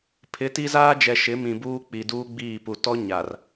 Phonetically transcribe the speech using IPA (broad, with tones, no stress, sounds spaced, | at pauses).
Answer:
pʰ ɪ˨˦ t i˦ z aː˦ d͡ʒ ɛ˨ ʃ ɪ˨˦ m ĩ˨ b uː˦ k͡p i˨ d uː˦ ɡ͡b iː˦˨ p u˨ t ɔ˦ ɲ a˨ r